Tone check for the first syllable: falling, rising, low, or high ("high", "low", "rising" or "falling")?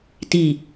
low